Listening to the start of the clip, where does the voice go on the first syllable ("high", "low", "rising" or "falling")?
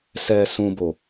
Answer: low